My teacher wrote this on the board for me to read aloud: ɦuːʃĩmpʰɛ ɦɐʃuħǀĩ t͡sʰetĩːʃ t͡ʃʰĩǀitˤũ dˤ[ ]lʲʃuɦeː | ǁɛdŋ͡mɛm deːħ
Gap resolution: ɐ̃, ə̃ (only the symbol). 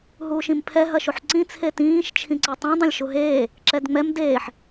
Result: ɐ̃